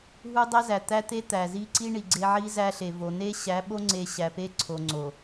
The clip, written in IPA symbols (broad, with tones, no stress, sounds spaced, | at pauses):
ɦ u˦ dˤ æ˦ z æ˨ t̪ æ˦ t̪ e˦ t̪ æ˨ z i˦ ǀ i˦ ɳ i˨ ɡ͡ǀ e˦ ʕ i˦ z æ˦ ɬ e˨ v o˨ n e˦ ɕ æ˨˦ ɓ o˦ ŋ͡ǀ e˨ ɕ æ˨ p e˦ ǀʰ o˨ ŋ͡ǀ o˨